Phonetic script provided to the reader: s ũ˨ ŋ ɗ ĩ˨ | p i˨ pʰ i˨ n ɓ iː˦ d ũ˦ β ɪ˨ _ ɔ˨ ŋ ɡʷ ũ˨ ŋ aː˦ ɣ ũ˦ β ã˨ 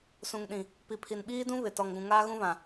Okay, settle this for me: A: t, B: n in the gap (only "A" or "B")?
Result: A